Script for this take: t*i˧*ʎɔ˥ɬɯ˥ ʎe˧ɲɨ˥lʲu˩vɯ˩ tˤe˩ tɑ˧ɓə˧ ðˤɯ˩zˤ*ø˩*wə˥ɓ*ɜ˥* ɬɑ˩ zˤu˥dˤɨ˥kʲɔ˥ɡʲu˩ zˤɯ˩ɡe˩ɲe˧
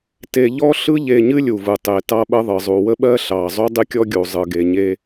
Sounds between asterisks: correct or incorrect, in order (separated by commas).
incorrect, incorrect, correct